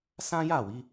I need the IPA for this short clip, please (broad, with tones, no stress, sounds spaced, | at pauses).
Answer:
s ã˦ j a˦˨ w i˨˦